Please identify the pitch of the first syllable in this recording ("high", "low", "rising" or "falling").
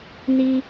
high